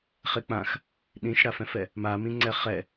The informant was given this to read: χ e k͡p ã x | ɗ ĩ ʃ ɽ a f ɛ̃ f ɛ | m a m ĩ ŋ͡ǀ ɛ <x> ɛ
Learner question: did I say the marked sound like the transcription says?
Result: no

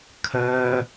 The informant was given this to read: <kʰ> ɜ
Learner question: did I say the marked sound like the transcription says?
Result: yes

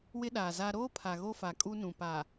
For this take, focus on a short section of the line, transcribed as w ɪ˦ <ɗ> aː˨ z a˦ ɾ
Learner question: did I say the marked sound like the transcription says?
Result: yes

